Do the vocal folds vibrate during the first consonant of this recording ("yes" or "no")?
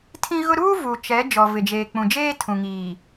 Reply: no